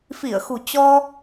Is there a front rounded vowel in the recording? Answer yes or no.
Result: no